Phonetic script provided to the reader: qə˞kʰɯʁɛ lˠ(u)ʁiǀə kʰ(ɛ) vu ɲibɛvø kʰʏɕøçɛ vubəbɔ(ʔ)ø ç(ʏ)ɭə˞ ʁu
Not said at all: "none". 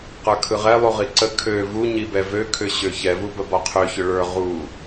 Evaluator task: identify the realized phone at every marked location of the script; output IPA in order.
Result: u, ø, qʰ, ʏ

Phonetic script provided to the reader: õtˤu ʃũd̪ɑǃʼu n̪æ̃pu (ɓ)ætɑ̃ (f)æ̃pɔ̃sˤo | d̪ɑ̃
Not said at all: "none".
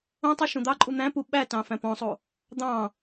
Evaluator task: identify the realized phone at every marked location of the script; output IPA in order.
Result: ɓ, f

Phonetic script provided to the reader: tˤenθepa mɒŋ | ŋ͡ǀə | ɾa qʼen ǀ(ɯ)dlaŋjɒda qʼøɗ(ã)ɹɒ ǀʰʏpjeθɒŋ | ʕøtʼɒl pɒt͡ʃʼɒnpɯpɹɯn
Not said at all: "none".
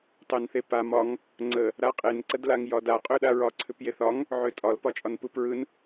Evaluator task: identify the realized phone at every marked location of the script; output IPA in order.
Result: ə, a

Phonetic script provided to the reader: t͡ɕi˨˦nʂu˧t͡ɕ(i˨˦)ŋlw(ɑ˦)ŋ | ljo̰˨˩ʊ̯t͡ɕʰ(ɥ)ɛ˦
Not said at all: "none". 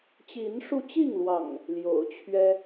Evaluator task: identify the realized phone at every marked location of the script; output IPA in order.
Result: i˥˨, ɑ̰˨˩, ɥ

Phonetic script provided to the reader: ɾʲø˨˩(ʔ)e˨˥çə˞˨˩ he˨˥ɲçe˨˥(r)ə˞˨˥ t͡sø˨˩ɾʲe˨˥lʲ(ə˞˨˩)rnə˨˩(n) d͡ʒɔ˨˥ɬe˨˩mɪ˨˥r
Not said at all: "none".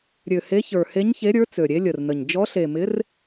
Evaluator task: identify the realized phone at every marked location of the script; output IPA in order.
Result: h, ɾʲ, ə˨˩, ɲ

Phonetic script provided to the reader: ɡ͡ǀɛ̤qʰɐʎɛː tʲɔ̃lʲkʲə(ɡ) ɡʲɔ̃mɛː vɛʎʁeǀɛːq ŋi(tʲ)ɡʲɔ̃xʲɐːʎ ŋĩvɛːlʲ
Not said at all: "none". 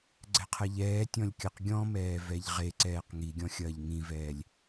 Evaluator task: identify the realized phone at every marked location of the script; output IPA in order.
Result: q, none

